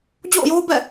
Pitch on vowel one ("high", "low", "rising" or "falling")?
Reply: falling